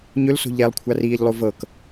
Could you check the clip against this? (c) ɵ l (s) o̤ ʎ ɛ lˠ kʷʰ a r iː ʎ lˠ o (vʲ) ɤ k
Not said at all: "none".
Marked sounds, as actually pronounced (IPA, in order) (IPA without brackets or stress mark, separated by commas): ɲ, s, v